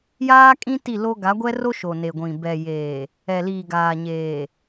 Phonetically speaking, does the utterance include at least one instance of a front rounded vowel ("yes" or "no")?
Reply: no